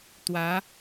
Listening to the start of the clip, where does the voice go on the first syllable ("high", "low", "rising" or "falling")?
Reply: rising